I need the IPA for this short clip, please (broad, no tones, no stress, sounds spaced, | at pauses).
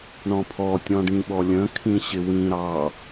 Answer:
ɳ ɔ̃ pʰ ɔ tʲ ɔ̃ ɖ ĩ ɓ ɔ lʲ ə̃ kʰ ĩ ɕ ɪ w ĩ ɾ ɑ